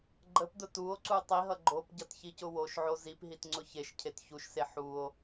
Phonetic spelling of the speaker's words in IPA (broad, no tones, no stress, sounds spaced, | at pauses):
ɡ͡ǃ ə p d ʊ t u o̯ ǀ u tˤ i ɦ ʌ ɡ͡ǃ o p ɟ ʌ t ç i c ʊ w o ʃ ʕ o z i p ɦ i t ŋ͡ǀ ʊ ç e ʃ cʰ e t ç u ʃ s e ħ u o̯